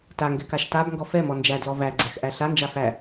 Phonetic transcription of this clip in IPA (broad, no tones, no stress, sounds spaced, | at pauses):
t a ŋ ɡ ɛ k a ʃ t a b ŋ ɡ ɔ f ɛ m ɔ n d͡ʒ æ d l ɔ v æ ɡ͡ǀ æ x ʔ æ ɬ a n d͡ʒ a f æ